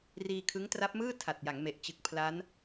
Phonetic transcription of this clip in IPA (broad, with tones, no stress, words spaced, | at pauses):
riː˧kʰɯ˦˥ŋtra˦˥p̚mɯː˥˩ tʰa˨˩t̚ja˩˦ŋme˨˩ʔt͡ɕɯ˨˩k̚ pʰla˦˥n